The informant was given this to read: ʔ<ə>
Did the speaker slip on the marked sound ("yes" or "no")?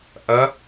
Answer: yes